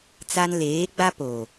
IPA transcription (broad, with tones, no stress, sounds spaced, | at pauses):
t͡s a˦ n l eː˨˦ ɡ͡b a˦ p o˨